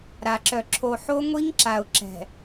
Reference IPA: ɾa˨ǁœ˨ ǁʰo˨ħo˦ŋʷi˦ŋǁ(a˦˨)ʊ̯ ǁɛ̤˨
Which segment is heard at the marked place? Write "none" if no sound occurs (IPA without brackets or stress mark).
a˨